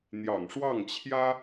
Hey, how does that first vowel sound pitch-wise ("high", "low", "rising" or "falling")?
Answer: low